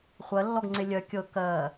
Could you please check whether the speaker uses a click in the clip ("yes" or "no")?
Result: yes